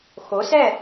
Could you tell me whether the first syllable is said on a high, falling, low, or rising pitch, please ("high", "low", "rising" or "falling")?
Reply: rising